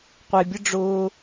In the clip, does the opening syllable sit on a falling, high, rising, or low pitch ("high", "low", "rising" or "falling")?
low